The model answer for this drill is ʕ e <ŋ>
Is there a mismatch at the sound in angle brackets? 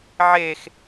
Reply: yes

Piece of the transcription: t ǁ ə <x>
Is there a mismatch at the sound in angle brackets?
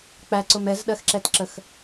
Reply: no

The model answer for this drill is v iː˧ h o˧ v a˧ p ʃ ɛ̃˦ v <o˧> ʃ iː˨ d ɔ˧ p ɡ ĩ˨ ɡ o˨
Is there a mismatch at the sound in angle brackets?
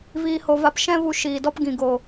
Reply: yes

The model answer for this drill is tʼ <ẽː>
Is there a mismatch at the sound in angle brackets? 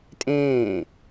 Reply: no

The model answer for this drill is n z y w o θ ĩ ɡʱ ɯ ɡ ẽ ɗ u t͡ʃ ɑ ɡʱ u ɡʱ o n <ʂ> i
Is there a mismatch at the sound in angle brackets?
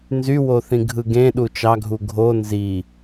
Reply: yes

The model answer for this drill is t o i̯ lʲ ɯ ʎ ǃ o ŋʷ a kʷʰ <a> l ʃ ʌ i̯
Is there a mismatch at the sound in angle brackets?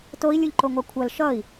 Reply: yes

